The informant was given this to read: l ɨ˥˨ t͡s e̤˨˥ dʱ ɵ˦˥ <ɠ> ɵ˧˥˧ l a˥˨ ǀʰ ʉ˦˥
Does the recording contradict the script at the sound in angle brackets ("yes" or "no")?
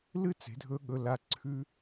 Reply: no